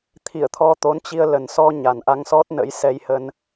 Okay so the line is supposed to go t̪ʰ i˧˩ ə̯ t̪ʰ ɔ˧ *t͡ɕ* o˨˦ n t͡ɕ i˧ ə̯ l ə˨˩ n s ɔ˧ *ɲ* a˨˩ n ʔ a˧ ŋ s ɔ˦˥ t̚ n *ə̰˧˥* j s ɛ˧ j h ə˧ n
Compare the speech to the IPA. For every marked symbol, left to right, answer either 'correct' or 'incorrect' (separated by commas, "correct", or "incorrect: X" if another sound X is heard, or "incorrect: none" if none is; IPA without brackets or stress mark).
incorrect: t̪, correct, correct